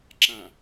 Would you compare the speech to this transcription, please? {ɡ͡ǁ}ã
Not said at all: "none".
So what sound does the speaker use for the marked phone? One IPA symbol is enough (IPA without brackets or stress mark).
ǁ